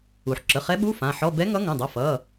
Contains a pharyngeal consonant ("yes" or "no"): yes